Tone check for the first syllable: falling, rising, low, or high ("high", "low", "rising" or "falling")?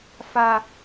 high